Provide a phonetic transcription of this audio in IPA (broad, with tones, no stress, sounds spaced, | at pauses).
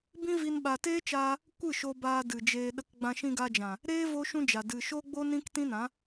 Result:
b ĩ˦ v i˧ n ɓ a˨ t eː˦ t͡ʃ aː˧ | kʷ ɨ˦˨ ʃ o˧ b aː˧ d ɨ˨ d͡ʒ eː˧ ɗ ə˦ k ɡ͡b ã˧ ʃ ĩ˧ ɡ a˧ d͡ʒ ã˨ | ɾ eː˦ v o˦ ʃ ũ˦ d͡ʒ a˨ d ɨ˨ ʃ o˦ ɡ͡b o˦ n ĩ˦ k t ĩ˦ n ã˨˦